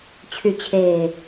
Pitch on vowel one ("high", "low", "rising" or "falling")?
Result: low